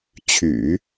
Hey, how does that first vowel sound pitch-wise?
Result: low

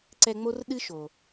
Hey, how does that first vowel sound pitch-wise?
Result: high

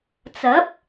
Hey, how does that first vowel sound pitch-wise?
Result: rising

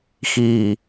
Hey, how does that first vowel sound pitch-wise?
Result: low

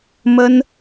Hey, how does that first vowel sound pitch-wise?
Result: high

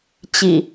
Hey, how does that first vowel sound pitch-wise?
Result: low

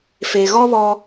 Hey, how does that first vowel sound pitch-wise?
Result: low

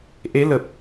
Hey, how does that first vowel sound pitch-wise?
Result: rising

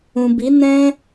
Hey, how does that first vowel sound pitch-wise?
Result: low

